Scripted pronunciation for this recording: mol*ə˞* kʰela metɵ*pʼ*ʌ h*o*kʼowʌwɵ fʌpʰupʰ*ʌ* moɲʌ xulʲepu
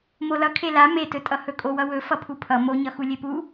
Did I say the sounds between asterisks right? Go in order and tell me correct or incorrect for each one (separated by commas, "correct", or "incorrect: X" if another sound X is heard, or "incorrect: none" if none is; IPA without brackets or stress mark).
incorrect: ʌ, incorrect: tʼ, incorrect: ɵ, correct